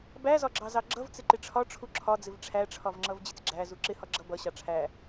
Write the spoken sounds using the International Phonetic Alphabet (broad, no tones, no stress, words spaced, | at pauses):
bæzɒɡ͡ǁɑ zɑɡ͡ǁʌv t͡sɪǃɪʈ͡ʂʰɒ ʈ͡ʂʰuǁʰɒd͡zɪv ʈ͡ʂʰæʈ͡ʂʰɒvŋ͡ǁʌv d͡ʑɪt͡sɡ͡ǁæ zuǁɪ hɒɡ͡ǁʌ bʌɕɑ ʈ͡ʂʰæ